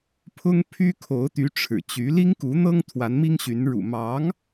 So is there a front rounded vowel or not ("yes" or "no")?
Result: yes